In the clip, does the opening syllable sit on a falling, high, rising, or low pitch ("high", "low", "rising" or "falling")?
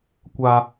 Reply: high